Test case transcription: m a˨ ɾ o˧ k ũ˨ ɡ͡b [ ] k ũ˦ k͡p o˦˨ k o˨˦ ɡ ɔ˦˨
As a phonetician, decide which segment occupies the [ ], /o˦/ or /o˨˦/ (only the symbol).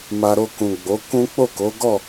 o˨˦